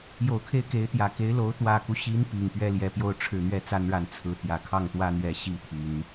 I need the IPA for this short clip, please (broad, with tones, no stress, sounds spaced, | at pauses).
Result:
j o˨˩ ʊ̯ kʰ e˥˩ ɪ̯ k e˧˥ ɪ̯ t̪ j ä˨˩ k e˧˥ ɪ̯ l o˧˥ ʊ̯ t̪ w ä˨˩ k u˦ ɕ i˧˥ n p i˨˩ ŋ p ɥ ɛ˥ l j ɛ˧˥ p j o˥˧ ʊ̯ ʈ͡ʂʰ ɻ̩˥˩ n̪ ɥ ɛ˥ t͡s a˥ n ɻ a˧˥ n t͡sʰ ɹ̩˥˩ t̪ j ä˨˩ kʰ ɑ˥˩ ŋ t̪ w ä˥ n̪ ɥ ɛ˧˥ ɕ i˥˩ t̪ʰ y˨˩˦ n